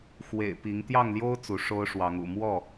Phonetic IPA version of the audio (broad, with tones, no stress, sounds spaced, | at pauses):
x w ḛ˨˩ ɪ̯ p i˨˦ ŋ t̪ j ɑ˥˨ ŋ l j o˦ ʊ̯ t͡s u˨˦ ʂ o˦ ʊ̯ ʂ w ɑ˨˦ ŋ ṵ˨˩ m w ɔ˥˨